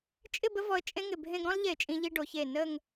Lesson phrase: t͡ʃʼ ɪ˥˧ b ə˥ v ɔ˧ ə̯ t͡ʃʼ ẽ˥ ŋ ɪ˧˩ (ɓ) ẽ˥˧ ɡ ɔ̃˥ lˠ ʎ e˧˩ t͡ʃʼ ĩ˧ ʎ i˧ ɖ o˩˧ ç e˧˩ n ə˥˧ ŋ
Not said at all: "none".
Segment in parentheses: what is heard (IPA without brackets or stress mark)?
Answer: bʱ